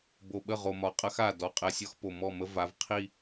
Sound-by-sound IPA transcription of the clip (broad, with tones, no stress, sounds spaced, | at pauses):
b o˨ ɓ ə˦˨ ʁ o˨ m ɒ˨ qʼ ɐ˦ x a˦˨ d ɔ˨ qʼ ɛ˨ sʲ ɒ˦ x p o˨ m ɔ˦˨ m ə˦ v a˨˦ v qʰ i˦